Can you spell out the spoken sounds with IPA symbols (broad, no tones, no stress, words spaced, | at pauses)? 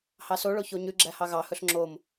hɑsoɭo çoɲʉɡ͡ǁæ hɑɣɑhɵɬ ŋ͡ǁom